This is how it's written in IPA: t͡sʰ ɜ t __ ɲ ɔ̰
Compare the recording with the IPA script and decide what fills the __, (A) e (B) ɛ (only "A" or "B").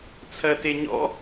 A